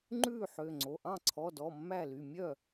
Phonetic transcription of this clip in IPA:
ŋ͡ǃ ʉː˥˩ ħ ø˩˧˩ ŋ͡ǀ o˩˧˩ ʔ ɑ̃˥˩ ǀʰ ɔ˩˧˩ d ɔ˩˧˩ mː æ˥˩ l y˩˧˩ mʲ œ˥˩

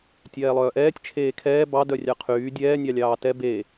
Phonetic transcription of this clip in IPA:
tʲ ɛː lˠ œː ʔ ɛː tʲ t͡ʃʰ eː kʰ ɛː b ɑ d œ rʲ ɑ qʰ yː dʲ ɛː nʲ ɑ lʲ ɑː t ɛ b e

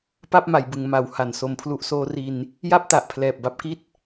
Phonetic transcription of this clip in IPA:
p a˥˩ p̚ m a˩˦ j b ɯ˩˦ ŋ m a˩˦ w h a˨˩ n s o˨˩ m pʰ l u˦˥ ʔ s oː˦˥ r i˧ n | j a˥˩ p̚ t a˨˩ ʔ pʰ l ɛː˨˩ p̚ b a˥˩ p̚ k i˥˩ t̚

